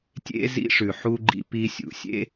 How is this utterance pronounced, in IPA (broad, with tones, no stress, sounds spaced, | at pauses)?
tʲ ḛ˥ z ḭ˥ ʂ ʉ˩ ħ u˥ ɡ͡ǃ ḭ˧ p i˧ sʲ ṵ˩ sʲ ḛ˥